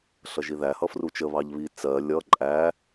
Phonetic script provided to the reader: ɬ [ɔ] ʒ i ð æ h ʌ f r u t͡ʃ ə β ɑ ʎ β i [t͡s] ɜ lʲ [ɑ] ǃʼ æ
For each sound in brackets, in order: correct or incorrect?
incorrect: ʌ, correct, incorrect: ʌ

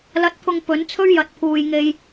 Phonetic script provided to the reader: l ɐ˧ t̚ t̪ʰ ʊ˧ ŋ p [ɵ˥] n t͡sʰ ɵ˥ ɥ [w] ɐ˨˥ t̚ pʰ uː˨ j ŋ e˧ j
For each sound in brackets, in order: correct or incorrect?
incorrect: ɵ˨˥, incorrect: j

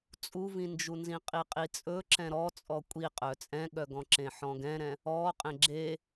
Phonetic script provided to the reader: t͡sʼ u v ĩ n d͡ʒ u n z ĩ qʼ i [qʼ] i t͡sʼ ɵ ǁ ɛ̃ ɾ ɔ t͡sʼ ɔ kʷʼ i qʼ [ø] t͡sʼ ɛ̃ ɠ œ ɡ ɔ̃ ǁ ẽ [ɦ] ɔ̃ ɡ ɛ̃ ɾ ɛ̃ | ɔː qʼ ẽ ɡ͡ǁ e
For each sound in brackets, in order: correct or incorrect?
correct, incorrect: œ, incorrect: ħ

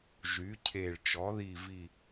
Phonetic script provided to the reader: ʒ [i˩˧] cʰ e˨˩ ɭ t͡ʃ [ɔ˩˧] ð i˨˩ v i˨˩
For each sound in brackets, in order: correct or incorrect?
incorrect: y˩˧, correct

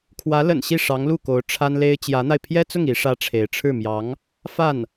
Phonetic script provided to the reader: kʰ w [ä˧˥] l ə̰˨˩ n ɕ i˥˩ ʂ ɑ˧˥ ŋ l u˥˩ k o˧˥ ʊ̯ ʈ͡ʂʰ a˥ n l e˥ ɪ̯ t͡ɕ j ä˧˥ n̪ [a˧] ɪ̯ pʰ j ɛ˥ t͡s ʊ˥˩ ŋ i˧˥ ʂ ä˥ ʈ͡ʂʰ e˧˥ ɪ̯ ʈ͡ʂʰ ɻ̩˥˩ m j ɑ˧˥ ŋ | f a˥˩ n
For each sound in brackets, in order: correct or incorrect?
correct, correct

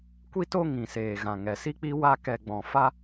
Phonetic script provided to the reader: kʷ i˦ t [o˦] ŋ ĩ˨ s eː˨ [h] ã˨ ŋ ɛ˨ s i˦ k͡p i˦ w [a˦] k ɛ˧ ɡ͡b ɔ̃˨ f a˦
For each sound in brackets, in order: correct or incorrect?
correct, incorrect: ɣ, correct

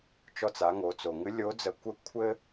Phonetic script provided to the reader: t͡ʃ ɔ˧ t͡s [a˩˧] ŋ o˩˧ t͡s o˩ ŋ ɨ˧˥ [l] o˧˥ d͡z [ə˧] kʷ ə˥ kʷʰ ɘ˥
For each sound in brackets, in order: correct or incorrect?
correct, incorrect: lʲ, correct

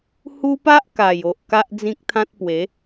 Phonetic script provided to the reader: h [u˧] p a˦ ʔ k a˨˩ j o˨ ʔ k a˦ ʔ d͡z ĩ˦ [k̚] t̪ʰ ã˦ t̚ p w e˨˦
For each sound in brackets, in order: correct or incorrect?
incorrect: u˦, correct

